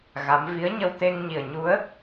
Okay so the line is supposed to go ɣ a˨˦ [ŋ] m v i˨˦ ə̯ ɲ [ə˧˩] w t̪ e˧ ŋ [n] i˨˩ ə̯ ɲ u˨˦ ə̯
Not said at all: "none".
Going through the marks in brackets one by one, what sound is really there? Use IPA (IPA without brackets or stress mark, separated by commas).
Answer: none, ə˧, ɲ